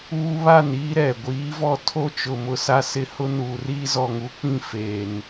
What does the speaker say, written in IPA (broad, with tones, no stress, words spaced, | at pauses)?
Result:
uː˦βa˦˨niː˦ ɾɛ˨ ɡʷiː˨˦vɔ˦˨ tʰo˦t͡ʃʊ˨mʊ˨ sa˦sɪ˦ hʊ˦nuː˨riː˦ zɔ˨ŋu˨˦k͡pĩ˦˨feː˨n